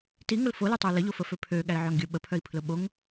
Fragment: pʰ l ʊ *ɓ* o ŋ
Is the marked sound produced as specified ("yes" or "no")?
yes